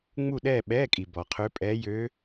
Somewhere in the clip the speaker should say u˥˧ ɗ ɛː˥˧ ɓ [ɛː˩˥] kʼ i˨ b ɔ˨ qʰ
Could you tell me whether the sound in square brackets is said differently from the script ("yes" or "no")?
yes